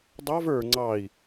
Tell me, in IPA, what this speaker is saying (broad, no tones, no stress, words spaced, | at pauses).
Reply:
dˤɑv ə˞ ŋ͡ǀɑi̯